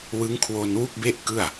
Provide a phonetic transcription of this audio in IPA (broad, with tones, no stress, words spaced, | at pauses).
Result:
wɯ˦˥ŋkʰwo˧nwu˥˩k̚be˥˩ʔ kɯ˥˩a̯